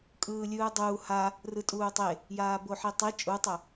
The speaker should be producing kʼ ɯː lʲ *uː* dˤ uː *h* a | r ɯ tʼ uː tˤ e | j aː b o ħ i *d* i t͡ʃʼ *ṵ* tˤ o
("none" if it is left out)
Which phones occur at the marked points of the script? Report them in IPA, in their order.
ɯː, h, tˤ, u

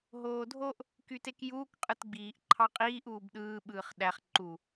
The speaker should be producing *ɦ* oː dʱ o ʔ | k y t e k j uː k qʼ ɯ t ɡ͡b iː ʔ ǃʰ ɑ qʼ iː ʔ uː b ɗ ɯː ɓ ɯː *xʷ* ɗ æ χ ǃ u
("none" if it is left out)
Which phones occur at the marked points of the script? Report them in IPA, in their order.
ɦ, χ

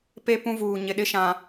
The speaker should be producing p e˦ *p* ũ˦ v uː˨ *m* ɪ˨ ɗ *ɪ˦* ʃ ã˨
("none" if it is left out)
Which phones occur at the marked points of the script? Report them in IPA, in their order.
p, ɲ, ɪ˦

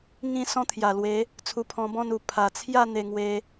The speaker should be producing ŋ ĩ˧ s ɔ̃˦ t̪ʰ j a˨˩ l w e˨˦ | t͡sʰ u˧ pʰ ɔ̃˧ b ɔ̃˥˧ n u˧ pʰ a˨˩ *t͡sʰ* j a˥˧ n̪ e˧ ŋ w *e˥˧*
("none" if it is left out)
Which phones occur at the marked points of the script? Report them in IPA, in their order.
t͡sʰ, e˧

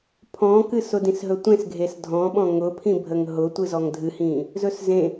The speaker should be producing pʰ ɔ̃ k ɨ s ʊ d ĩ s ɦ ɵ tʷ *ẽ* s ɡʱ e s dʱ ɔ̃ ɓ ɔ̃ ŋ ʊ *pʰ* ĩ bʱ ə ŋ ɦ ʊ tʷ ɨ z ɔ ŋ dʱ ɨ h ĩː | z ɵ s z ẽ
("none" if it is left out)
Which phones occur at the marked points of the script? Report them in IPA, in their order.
ẽ, pʰ

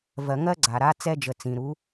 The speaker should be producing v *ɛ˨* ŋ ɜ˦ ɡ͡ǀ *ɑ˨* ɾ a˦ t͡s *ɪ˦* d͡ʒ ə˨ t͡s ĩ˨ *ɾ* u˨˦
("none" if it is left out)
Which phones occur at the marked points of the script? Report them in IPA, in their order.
ɜ˨, a˨, ɛ˦, ɾ

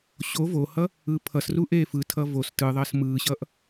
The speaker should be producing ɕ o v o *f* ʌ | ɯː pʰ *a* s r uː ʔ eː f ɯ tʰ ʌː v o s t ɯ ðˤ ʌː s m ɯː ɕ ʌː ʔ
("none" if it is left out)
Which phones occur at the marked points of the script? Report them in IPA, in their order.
h, ʌ

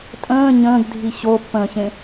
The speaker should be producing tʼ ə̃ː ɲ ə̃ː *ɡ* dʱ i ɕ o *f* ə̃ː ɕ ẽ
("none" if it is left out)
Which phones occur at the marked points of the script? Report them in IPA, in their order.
ɡ, pː

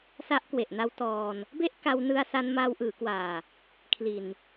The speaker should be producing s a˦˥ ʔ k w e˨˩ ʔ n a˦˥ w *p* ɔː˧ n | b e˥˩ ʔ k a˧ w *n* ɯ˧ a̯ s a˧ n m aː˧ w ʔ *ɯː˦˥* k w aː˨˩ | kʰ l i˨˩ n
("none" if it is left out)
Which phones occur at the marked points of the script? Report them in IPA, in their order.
t, n, ɯː˩˦

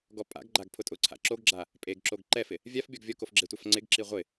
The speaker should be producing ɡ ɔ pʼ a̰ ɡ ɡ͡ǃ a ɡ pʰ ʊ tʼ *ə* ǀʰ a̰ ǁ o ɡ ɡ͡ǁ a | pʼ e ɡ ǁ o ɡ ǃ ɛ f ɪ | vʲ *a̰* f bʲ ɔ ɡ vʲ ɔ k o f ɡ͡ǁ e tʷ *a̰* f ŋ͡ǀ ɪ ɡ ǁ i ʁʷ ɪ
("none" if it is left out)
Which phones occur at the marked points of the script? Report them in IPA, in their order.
ʊ, a, a

